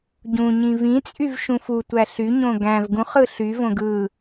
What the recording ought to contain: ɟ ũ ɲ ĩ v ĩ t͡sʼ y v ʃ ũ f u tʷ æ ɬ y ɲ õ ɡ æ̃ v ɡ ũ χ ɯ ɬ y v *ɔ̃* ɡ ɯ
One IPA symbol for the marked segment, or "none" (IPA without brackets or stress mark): õ